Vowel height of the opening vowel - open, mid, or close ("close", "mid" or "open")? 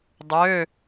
mid